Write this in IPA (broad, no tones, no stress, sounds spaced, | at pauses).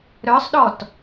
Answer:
ɾ œ sˤ ɗ ɔ t